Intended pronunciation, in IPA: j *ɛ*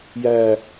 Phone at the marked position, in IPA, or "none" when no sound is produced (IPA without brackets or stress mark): æ